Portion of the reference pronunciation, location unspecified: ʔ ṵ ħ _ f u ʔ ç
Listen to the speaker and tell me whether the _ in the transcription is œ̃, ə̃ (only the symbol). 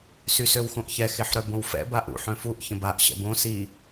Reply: œ̃